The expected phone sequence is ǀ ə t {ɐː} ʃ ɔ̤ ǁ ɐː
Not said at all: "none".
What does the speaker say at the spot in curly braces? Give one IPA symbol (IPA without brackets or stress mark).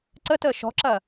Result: əː